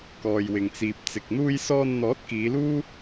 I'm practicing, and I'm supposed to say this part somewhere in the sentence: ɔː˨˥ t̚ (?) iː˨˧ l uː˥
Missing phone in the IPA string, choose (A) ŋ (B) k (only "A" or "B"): B